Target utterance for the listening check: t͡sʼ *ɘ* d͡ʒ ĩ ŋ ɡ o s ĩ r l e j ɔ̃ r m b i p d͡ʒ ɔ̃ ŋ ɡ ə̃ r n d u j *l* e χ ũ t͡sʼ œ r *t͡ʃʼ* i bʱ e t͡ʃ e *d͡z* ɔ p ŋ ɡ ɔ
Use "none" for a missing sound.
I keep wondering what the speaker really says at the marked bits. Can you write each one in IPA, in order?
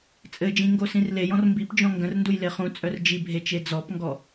ɘ, l, d͡ʒ, d͡z

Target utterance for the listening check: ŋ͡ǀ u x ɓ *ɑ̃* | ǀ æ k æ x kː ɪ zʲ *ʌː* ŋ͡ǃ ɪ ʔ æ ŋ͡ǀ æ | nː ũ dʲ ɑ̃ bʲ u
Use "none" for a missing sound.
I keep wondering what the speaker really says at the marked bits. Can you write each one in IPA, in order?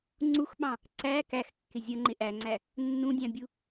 ɑ̃, ʌ

